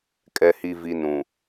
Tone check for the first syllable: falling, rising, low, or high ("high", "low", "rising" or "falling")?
low